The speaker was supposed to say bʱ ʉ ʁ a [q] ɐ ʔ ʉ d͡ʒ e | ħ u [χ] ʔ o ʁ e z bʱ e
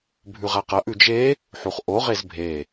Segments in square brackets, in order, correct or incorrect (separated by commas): correct, correct